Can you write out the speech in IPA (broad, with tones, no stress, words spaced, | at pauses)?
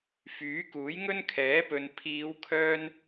fyː˨˥kuː˨˥jŋɵ˥n kʰɛː˨˥pɵ˨n pʰiː˨˧wkʰœː˧n